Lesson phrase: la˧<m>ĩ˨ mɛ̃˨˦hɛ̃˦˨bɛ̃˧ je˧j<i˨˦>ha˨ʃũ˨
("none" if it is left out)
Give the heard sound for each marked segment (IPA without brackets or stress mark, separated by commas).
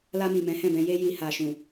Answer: m, i˨